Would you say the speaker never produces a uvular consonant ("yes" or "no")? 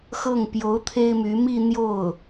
yes